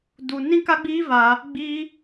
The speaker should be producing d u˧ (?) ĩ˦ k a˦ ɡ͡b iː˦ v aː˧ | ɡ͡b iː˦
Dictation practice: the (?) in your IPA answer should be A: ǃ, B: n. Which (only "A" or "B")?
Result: B